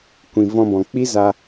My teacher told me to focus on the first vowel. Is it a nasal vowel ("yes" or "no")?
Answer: yes